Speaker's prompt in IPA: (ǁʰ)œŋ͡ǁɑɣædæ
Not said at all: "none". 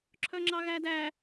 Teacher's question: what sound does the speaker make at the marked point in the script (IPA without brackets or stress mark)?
ǁʰ